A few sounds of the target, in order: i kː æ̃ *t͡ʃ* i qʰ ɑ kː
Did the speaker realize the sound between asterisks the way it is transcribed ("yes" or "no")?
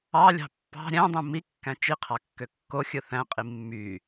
yes